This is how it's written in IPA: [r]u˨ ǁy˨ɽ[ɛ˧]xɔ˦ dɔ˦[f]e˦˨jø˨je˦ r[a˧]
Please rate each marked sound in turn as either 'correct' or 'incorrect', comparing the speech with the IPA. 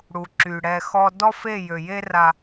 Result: incorrect: ɽ, correct, correct, correct

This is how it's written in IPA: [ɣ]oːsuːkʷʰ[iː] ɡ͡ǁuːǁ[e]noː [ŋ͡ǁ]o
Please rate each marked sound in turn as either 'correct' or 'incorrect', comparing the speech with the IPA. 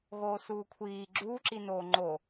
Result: correct, correct, incorrect: i, incorrect: ŋ͡ǃ

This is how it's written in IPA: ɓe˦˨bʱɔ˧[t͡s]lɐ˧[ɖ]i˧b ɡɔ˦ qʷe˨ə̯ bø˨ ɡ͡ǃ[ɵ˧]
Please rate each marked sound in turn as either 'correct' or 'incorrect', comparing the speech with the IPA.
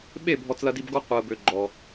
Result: correct, incorrect: d, incorrect: ɔ˧

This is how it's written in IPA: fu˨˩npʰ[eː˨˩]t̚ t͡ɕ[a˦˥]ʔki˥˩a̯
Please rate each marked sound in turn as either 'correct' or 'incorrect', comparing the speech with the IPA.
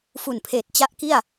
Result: correct, correct

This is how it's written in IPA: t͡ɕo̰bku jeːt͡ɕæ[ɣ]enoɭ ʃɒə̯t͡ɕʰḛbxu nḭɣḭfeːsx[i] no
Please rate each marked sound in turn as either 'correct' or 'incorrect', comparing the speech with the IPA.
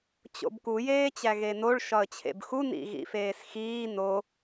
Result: correct, incorrect: iː

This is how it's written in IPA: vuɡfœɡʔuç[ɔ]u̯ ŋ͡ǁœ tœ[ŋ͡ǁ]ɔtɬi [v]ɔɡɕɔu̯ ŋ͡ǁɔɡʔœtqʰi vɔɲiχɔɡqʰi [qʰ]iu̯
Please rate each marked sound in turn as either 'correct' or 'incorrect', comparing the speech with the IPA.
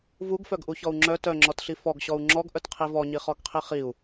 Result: correct, correct, incorrect: f, incorrect: χ

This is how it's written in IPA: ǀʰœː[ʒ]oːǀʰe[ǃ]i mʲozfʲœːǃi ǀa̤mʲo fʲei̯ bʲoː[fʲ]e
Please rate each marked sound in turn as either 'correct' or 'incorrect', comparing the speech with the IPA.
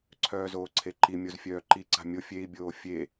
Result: incorrect: z, correct, correct

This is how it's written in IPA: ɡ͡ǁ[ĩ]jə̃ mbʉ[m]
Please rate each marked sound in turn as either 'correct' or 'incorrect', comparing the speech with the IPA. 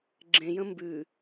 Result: incorrect: ẽ, incorrect: none

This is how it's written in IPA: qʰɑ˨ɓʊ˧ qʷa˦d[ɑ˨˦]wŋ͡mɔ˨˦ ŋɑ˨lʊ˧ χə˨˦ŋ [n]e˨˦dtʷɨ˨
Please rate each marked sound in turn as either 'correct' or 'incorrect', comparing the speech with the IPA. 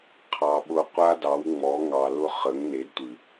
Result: correct, correct

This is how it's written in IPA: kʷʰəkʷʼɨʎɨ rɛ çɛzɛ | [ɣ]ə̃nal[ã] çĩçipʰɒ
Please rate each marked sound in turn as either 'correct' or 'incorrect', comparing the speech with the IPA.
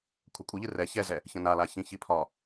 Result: incorrect: ç, incorrect: a

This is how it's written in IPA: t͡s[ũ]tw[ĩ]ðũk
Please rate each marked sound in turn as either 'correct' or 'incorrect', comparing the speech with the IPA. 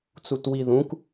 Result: incorrect: u, incorrect: i

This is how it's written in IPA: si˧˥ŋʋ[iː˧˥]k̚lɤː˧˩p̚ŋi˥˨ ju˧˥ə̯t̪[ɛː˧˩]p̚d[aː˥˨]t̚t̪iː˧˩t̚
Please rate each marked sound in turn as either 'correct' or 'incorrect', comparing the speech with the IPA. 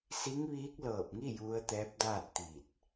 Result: correct, incorrect: ɛː˧˥, correct

